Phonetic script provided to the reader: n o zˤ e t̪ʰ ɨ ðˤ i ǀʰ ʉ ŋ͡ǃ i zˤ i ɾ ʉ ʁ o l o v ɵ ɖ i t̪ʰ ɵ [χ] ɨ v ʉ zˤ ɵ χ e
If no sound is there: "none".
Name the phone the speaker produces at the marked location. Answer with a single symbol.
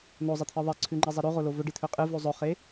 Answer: qʼ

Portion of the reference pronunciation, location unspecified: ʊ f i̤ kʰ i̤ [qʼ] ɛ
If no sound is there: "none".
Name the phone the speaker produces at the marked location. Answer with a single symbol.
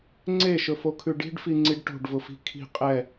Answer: qʼ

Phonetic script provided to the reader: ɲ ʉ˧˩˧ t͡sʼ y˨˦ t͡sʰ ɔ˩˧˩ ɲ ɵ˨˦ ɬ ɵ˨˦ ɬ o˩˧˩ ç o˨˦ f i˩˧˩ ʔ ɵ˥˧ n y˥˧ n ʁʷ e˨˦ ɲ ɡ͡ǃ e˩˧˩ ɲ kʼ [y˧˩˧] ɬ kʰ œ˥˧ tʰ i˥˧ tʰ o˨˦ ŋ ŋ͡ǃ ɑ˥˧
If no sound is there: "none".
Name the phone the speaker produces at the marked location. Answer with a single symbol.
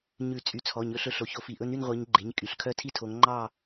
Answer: y˩˧˩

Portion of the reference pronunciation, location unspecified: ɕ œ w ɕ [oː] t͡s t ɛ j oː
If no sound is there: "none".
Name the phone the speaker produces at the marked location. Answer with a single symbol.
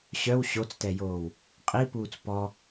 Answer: o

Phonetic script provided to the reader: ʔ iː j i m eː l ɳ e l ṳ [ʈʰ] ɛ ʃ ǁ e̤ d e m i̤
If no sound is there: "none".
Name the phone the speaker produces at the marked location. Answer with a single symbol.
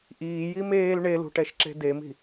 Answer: ʈ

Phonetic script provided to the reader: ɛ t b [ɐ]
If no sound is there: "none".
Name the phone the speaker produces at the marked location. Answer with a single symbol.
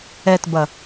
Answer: ɐ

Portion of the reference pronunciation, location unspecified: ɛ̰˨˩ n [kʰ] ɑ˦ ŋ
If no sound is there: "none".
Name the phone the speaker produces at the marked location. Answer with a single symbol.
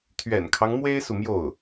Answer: kʰ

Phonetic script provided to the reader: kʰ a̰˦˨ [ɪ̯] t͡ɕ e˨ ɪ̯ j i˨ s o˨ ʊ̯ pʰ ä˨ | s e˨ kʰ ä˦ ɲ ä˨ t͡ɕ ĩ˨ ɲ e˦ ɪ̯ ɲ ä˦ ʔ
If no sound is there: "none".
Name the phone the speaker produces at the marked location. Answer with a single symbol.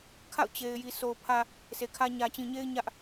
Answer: ʊ̯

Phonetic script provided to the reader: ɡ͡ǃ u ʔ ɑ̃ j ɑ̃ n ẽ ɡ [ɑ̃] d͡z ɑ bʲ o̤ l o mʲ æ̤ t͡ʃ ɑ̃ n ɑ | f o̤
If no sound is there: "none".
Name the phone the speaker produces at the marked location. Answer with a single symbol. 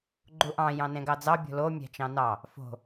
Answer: ɑ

